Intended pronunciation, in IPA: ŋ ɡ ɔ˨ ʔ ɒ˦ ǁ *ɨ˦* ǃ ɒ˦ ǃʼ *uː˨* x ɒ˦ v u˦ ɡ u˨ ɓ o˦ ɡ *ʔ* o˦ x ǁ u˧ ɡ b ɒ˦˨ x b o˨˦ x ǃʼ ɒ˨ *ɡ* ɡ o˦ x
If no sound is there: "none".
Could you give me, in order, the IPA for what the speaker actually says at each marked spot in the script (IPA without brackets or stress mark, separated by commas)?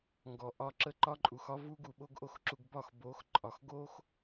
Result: ə˦, u˨, ʔ, x